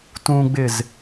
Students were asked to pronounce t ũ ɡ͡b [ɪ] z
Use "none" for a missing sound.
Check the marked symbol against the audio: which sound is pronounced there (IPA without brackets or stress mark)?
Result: ɪ